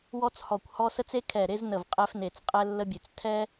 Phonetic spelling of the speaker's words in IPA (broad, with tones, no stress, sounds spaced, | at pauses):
w ɔ˥ t͡s h ɔ˧˩ kʷ h ɔ˥ s ə˥ t͡s e˥ kʰ ɛ˧˩ ɾ e˥ z n ə˧˩ v qʼ ɛ˥ f n e˧˩ t͡s qʼ ɛ˥ lː ə˥ bʲ ʉ˧˩ t͡s tʰ ɛ˥